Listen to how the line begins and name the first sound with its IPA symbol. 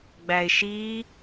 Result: ɡ͡b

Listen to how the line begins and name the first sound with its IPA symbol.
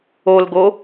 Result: o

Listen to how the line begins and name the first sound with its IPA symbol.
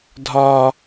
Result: dʱ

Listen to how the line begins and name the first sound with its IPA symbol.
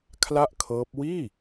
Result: kʰ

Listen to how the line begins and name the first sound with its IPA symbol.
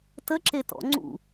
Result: t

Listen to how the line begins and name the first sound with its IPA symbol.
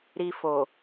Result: ɾ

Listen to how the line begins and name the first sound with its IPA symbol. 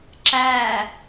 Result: ǁ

